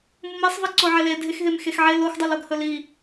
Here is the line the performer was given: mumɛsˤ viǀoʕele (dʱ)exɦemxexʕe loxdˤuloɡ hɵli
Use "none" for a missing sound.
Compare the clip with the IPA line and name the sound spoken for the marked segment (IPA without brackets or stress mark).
dʱ